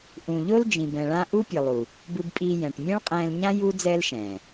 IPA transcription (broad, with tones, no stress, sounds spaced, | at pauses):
ʔ ũ˨ ʎ o˧ l d͡ʒ ĩ˨ b ɛ̃˨ ɭ ã˦ ʔ u˦ pʲ ɯ˨ lˠ u˨ | b ɯ˧ b pʼ iː˧ j ɛ̃˨ ʈ mʲ ɛ̃˦ ɭ qʼ ɛ̃ː˧ l ɲ ã˦ j u˦ d͡z ɛː˦ l ʃ ɛ̃ː˨